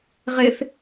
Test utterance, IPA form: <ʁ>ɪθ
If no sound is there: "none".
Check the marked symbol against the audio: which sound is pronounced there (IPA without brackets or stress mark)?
ʁ